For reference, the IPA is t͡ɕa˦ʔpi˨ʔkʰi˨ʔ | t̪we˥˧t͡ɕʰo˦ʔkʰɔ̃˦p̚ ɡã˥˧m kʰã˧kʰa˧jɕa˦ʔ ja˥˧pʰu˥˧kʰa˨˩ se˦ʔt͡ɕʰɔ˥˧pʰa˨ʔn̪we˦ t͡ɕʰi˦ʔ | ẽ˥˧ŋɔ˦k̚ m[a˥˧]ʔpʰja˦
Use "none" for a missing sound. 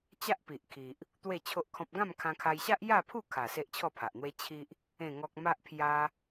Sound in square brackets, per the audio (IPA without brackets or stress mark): a˦